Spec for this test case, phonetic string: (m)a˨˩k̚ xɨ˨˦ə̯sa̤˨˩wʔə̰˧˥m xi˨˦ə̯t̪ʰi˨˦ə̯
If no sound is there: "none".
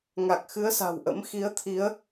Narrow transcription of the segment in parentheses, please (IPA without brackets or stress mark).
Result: ŋ